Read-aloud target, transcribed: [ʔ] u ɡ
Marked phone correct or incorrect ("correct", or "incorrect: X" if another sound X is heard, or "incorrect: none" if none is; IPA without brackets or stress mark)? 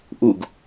correct